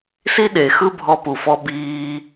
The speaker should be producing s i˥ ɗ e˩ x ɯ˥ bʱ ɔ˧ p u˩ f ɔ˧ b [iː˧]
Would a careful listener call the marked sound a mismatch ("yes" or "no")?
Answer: no